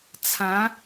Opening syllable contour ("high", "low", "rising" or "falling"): rising